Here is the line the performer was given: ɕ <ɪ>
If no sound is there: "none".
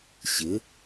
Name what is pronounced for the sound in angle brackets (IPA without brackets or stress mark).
ɪ